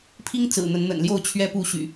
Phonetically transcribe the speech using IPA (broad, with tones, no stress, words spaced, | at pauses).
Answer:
pʰi˦ŋt͡sɹ̩˨˩ n̪ə˨˦nn̪ə̰˨˩nljo˥˨ʊ̯ t͡ɕʰɥɛ˦pu˥˨ ɕy̰˨˩